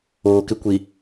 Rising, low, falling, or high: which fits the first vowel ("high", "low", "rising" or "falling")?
low